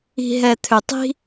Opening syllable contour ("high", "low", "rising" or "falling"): low